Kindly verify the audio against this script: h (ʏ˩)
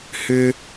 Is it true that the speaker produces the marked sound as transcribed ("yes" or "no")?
yes